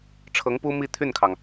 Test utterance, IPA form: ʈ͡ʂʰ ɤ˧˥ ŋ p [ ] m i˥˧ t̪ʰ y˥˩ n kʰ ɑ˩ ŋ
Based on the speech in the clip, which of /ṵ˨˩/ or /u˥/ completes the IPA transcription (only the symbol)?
u˥